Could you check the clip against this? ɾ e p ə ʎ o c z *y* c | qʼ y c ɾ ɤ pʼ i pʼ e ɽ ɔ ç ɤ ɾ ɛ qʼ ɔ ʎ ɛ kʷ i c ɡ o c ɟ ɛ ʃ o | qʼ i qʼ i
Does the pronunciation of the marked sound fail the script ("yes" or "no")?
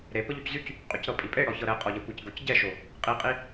no